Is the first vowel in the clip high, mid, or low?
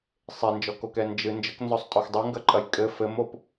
mid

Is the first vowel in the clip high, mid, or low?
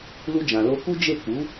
high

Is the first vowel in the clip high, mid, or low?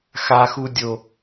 low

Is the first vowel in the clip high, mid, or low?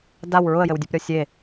low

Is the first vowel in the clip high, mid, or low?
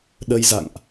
mid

